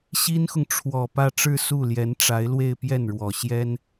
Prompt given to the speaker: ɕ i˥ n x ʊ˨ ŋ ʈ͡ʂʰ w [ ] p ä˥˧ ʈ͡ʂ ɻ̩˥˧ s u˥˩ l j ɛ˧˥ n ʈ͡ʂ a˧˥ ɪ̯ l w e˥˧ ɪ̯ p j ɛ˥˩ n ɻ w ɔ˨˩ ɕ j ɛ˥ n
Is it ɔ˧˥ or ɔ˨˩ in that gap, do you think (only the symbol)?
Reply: ɔ˨˩